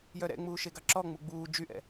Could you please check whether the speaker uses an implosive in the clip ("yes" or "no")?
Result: no